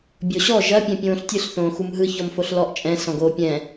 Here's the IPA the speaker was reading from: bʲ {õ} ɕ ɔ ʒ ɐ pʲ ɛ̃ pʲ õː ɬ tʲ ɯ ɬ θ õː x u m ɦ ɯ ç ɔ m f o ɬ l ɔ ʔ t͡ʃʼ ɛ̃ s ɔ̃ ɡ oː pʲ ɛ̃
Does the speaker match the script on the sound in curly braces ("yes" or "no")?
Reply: no